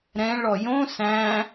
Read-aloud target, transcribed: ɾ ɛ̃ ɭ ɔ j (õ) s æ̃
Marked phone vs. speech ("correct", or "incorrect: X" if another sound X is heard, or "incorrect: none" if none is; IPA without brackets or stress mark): correct